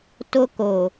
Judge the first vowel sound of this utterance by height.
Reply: mid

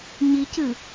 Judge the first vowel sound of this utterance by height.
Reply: high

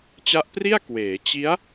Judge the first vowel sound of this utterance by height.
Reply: low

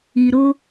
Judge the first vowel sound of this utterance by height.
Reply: high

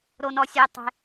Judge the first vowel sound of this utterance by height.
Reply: mid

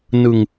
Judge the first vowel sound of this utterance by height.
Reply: high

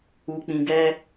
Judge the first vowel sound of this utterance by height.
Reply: high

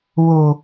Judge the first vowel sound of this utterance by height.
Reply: mid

